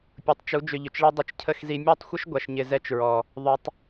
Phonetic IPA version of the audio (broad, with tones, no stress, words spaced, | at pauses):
pʲu˨tˤt͡ʃu˨˦ d͡ʒʏ˧ʎʏ˨t͡ʃɭe˦ dˤɪ˧t͡ʃcʰə˦˨xzi˧ mʲɔ˦˨tˤxʷə˦ʃ ɡʷa˨ʃɲɪ˨ zɛ˦t͡ʃɹɔ˨ | ðˤʏ˧tˤ